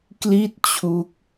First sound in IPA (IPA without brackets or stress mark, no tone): k